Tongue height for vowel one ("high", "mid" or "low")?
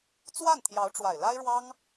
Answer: low